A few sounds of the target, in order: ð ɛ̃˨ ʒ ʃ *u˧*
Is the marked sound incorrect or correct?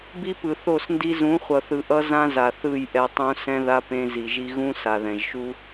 incorrect